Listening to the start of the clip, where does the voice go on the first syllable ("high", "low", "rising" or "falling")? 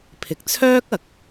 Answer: low